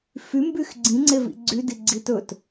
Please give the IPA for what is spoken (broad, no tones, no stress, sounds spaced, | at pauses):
f y m b y x ɡ͡ǀ ĩ ŋ͡ǀ e v ḭ ɡ͡ǀ y d i ɡ͡ǀ i t ɵ t